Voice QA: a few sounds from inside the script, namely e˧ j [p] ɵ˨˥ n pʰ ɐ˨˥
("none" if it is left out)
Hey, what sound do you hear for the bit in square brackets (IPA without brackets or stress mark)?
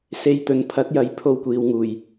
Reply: t̪